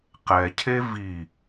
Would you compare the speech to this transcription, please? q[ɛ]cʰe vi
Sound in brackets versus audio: correct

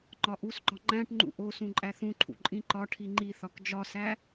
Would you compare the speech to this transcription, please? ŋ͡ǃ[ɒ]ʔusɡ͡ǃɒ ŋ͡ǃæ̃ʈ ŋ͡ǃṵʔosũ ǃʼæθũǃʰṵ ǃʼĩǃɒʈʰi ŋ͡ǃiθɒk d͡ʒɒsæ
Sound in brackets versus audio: correct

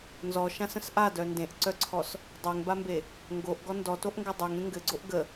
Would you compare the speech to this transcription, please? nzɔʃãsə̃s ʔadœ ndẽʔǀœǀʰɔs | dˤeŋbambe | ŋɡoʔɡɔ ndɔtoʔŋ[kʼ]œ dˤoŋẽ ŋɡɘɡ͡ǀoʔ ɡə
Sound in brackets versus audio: incorrect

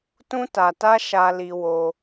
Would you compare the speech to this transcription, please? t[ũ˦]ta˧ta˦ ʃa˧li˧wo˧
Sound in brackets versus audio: correct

